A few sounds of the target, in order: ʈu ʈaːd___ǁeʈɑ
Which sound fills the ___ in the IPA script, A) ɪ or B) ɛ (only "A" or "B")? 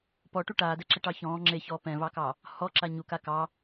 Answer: B